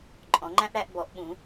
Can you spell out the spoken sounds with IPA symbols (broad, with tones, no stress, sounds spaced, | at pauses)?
ǃʼ ɔ̃˨˥ ŋ͡ǃ æ̃˥ ʔ ɽ æ˨˥ ʔ b ɔ˨˥ ʔ ɓ ũ˨˥